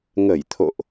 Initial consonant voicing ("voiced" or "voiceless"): voiced